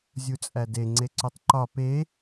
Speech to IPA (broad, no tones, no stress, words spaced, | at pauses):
zʲut͡sʼæde ŋ͡ǀeǀutˤǃɒ pe